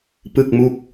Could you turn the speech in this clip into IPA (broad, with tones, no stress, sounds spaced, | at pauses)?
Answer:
p ɯ˥˩ k̚ m u˥˩ k̚